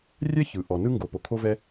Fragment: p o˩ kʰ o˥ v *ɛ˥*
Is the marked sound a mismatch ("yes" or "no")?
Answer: no